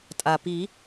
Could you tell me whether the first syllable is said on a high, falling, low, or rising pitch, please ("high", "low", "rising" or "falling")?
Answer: low